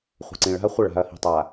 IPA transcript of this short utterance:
χʷ ə̤˨ ǀ ĩ˨ ɭ a̤˦ ɐ̯ χʷ ə˦˨ ɭ a̤˨ ɐ̯ h i̤˨ tˤ a˨

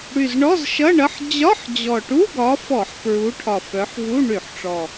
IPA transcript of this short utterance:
ɽ y˨˩ z ɳ ɔ˧˥˧ z ʃ ʌ˧˥˧ ɳ ʌ˧˥˧ ħ d͡ʑ ɒ˧˥˧ ħ d͡ʑ ɔ˨˩ ʈ u˧˥˧ ɡ ɒ˨˦ f ɔ˧˩˧ ħ p ɹ u˨˦ ʈʰ ɒ˨˩ f œ˨˦ ħ v u˧˥˧ ɳ y˧˩˧ ħ ʈ͡ʂ ɔ˨˩

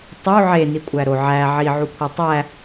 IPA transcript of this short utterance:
tˤ u ʕ e n i kʷʼ æ ɾ o ʕ æ ʕ i ʕ u kʷʰ e tˤ æ

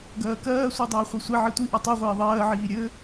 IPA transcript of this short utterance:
ɡ ɜː k ɜː sʷ i dˤ iː χʷ i sʷ e ʕ i tʷ i ʔ ɜ tˤ u ʁʷ iː ðˤ ɜː ʕ iː ɾʲ ɘ

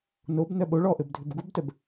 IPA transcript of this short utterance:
n o b n œ ɓ o ɭ ɔ ʔ ɘ b dʱ ø b ɡ u b t œ b

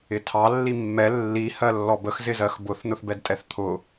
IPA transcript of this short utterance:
ɪ tʰ ɑ lː i mː ɛ lː i h ɜ lː ɔ b ə x z ɪ z ɜ x b ʊ θ n ʊ θ b ɛ d tʼ ɛ θ t̪ʰ ʊ

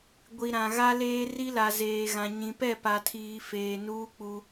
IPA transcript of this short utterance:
ɡʷ i˨ ɾ ã˨ ɣ a˦ l eː˦ r i˦ l a˨ z eː˨ ɣ ã˨ ɲ ĩ˨ p ɛ˦˨ p a˨ tʰ iː˨ f eː˨ n uː˦ k͡p u˦

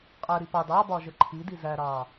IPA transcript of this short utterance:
qʼ ɛ ɾ i p ɑ d ɑ b ɒ ʒ ə ǃʰ i d i z æ ɾ ɑː

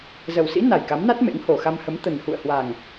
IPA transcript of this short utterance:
z ə˨˩ w s ḭ˧˥ n a˨˩ j k a˨˦ m n a˦˥ t̚ m ḛ˧˥ ŋ h o˨˩ x a˧ m h ə˨˦ m t̪ ə˨˩ n h ṵ˧˨ ə̯ h w a˨˩ ŋ

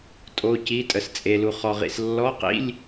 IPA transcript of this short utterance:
tʼ o˧˥˧ c i˧˥˧ tʼ ə˨ s t͡sʼ e˨ l u˨ χ ɔ˨ ʁ ḭ˨ s lː ɔ˧˥˧ q ḭ˧˥˧ lʲ

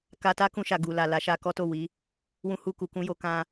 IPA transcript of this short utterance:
k a˧ t a˦ k ũ˧ ʃ a˨ ɡ u˨ l a˨ l a˨˦ ʃ a˧ k ɔ˦ t o˦˨ w i˨˦ | w ũ˧ h u˧ k u˨ k ũ˧ j o˧ k ã˧

